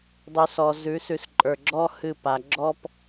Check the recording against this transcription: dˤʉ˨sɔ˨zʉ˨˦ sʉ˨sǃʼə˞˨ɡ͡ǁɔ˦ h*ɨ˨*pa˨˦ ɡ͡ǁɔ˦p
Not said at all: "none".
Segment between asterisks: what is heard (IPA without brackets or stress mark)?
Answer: ɨ˦˨